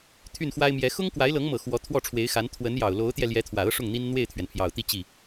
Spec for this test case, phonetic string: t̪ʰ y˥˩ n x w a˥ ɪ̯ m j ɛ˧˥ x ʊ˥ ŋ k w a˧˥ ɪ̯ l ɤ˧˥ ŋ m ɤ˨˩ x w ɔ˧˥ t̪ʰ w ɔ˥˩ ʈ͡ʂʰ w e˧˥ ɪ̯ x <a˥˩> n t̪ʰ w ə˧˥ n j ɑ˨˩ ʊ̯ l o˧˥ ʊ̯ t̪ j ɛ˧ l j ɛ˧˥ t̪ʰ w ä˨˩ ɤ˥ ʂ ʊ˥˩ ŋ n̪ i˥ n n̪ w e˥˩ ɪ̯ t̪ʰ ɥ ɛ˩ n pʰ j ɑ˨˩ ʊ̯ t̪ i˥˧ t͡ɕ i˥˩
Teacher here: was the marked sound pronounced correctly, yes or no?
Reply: no